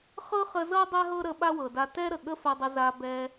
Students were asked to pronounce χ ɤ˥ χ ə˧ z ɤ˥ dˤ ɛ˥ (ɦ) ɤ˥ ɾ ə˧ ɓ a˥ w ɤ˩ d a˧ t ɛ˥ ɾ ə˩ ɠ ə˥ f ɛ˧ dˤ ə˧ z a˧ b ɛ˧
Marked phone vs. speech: correct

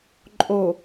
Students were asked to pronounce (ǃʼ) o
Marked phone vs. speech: correct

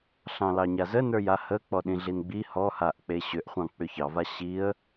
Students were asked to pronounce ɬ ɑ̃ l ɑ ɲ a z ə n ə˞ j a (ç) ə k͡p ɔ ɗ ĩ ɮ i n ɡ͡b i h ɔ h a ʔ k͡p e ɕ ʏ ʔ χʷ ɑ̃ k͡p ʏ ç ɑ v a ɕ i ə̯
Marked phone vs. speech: incorrect: h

